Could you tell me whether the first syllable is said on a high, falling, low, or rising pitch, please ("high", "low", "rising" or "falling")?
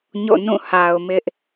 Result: falling